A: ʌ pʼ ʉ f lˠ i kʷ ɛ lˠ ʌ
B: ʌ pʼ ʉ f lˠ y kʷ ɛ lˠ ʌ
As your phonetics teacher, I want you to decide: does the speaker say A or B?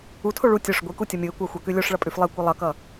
A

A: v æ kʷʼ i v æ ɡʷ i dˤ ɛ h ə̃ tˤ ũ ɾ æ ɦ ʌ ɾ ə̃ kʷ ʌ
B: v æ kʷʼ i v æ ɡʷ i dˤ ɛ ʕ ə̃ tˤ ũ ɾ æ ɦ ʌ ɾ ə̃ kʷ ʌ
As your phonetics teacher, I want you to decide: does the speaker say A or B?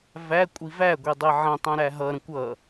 B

